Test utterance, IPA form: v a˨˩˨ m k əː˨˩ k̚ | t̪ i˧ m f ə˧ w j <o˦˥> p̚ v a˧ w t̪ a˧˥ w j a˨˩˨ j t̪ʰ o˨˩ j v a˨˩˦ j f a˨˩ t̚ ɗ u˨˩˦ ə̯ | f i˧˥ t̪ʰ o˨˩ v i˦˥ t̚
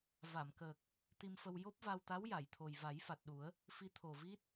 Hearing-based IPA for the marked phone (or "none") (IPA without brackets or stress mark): o˦˥